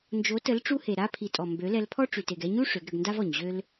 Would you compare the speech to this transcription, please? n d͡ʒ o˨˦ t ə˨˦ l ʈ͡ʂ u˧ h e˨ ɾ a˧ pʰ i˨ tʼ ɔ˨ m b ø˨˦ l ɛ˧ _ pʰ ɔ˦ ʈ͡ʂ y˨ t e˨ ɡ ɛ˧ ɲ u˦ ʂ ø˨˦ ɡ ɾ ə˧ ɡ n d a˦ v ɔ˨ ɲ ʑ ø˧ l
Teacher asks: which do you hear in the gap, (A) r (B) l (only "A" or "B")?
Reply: B